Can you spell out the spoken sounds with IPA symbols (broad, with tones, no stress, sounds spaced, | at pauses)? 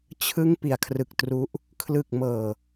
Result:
t͡ɕʰ ɯ˦˥ ŋ p i˩˦ a̯ kʰ r ɯ˨˩ k̚ t r u˦˥ ʔ | kʰ l ɯ˨˩ k̚ m ɤː˨˩